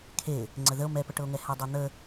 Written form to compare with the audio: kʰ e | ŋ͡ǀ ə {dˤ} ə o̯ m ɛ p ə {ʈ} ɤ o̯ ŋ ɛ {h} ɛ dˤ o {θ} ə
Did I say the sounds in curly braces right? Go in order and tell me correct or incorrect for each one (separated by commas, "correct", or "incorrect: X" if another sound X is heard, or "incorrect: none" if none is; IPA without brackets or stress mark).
incorrect: ð, correct, correct, incorrect: n̪